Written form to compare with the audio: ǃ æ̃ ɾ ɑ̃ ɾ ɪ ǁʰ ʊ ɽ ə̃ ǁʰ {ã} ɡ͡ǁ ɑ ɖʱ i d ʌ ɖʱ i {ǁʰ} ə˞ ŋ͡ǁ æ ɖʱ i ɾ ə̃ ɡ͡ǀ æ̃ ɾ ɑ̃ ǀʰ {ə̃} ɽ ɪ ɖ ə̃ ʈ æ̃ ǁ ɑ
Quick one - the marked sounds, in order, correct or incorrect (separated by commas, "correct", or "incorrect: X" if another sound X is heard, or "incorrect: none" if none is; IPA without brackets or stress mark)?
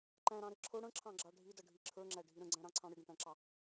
incorrect: ɑ̃, correct, incorrect: ɑ̃